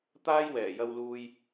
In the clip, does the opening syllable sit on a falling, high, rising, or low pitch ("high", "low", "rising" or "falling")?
high